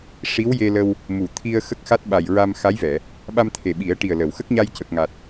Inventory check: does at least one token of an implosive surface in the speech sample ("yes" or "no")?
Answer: yes